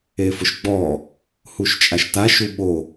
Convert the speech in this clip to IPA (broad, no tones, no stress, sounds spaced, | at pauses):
e f ʊ ʃ ɡ͡b ɔ | h u ʃ t͡ʃʼ a ʃ t a ʃ u ɓ o